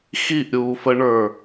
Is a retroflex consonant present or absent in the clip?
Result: present